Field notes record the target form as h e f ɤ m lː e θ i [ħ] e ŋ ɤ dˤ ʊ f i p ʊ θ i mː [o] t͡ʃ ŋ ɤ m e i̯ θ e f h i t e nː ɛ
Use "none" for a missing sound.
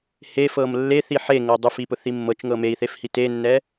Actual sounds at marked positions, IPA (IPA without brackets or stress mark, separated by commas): ħ, ɤ